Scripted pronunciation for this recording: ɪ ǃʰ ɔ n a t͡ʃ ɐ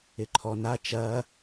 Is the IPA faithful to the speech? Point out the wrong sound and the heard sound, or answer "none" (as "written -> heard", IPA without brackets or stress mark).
none